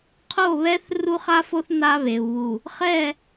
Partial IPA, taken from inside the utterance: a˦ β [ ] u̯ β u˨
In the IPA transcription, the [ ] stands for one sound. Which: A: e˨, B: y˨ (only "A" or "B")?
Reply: A